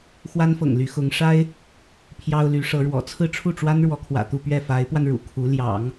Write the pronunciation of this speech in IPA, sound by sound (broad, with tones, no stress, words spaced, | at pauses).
xwa˥n fɤ̰˨˩ŋly˧˥xʊ˧˥ŋ ʂa˥ɪ̯ | pʰjɑ˥ʊ̯ly˧˥ʂɤ˧˥ɻwɔ̰˨˩ t͡sʰɹ̩˥ʈ͡ʂʰu˥˩ʈ͡ʂwa˥nɻwɔ˧˥ kʰwä̰˨˩t̪u˥˧ pɥɛ˥˩fa˧˥ɪ̯pwa˧n ɻṵ˨˩kʰu˧˥ ljɑ̰˨˩˦ŋ